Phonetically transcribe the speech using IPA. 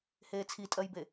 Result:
h eː t͡sʰ i tʼ ɜ j b e

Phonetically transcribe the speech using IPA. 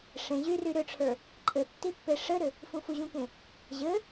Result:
ʂ ẽ ʑ y r y ɾ ʏ ʈ͡ʂʰ ə˞ | ǃʼ ɘ tː i pː e ʂ ɘ ɾ ʏ | f ũ f u ʑ ũ k ẽ | ʑ ɘ

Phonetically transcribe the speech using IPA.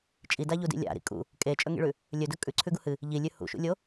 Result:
t͡ʃʼ i d a ʎ u d ḭ lʲ a̰ ɾ ḭ kʼ ṵ | kʼ e t͡ʃʼ ɵ ŋ ḭ ɭ ʉ | lʲ ɵ d ɵ kʼ ʉ ǀʰ ʉ ɡ u h ɨ | ʎ i lʲ ʉ h ṵ ʃ ṵ lʲ o

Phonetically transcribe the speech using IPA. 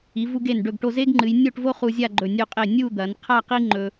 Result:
i˩˧ v u˧ ɡ e˧˩ n ɖ ɵ˧˩ ɡ ʈ o˧ z e˥ ɡ ŋ͡ǃ ɨ˩˧ j nʲ o˥˧ ʈ v o˥ χ u˧ zʲ a˥˧ ɡ͡ǃ ɵ˧˩ nʲ ʉ˧˩ qʼ e˧˩ nʲ u˥˧ d̪ ɐ˩˧ n qʰ a˥˧ q i˥ ŋ͡ǃ ɵ˧

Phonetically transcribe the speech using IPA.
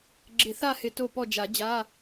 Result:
ɡ͡ǁ ɪ˨˩˦ θ a˦˨ h ɪ˨˩˦ t o˦˨ p ɔ˦˨ d͡ʒ a˨˩˦ d͡ʑ a˧˥˧

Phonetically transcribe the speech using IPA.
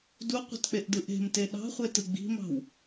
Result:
d u qʷ e̤ t k͡p e ʔ d ɯ ʔ e̤ m t e ɗ ɑ̤ χʷ e t ɯ ɡ͡b i̤ m ɑ̤ w

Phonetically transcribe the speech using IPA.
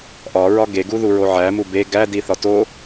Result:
ʔ ɒ ɹ ɒ ɡ e ɡ u ð u ɹ o ʕ æ m u b e ɡ æ d i θ ɒ t o

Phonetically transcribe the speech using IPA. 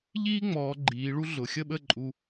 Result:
ʎ iː˥ ŋ͡m ɔː˩˧ ɡ͡ǃ iː˩˧ ɭ u˥ ɮ ʊ˩˧ xʲ ə˥˧ ɓ ə˥˧ ǃʼ u˧

